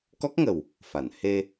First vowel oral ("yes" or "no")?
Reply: yes